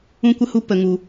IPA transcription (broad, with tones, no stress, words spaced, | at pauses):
ũ˦kʷə˦hu˦ pə˧ ŋu˧